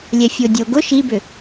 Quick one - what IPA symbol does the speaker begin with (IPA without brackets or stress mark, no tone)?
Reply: lʲ